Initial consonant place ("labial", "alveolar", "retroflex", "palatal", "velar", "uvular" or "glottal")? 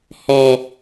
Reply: glottal